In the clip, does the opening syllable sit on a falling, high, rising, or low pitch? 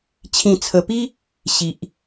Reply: low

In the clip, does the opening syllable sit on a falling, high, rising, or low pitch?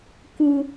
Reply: high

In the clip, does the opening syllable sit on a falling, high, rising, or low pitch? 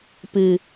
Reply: low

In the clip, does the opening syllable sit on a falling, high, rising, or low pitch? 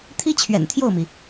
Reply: high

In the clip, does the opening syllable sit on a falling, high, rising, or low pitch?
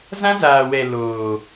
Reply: high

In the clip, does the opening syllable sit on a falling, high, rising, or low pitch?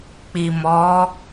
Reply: low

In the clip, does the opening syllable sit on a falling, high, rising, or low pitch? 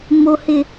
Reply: low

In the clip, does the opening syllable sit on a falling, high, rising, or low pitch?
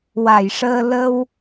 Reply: low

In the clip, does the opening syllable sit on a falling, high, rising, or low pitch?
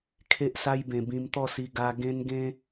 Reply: high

